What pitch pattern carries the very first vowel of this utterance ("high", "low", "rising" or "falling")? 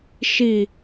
low